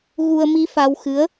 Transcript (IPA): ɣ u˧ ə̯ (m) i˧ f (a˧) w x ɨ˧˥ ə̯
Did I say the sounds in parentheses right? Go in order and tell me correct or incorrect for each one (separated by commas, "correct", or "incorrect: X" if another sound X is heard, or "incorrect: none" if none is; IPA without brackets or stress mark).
correct, correct